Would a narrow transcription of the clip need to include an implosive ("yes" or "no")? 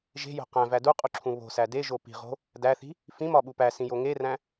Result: yes